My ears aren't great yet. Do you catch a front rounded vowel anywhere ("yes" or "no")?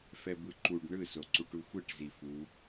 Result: no